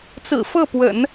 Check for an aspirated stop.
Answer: absent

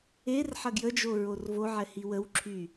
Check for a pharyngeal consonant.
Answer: present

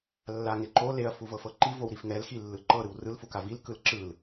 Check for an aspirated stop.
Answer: absent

